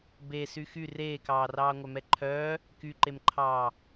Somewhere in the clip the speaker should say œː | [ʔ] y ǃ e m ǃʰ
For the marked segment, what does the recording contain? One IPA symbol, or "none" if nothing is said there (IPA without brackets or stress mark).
k